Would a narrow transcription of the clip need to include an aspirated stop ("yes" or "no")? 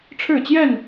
yes